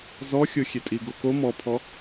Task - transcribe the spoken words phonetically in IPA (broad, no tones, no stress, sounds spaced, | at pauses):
z ɔ xʲ o xʲ e tʼ i ɡ o k o m ɔ pʰ ɔ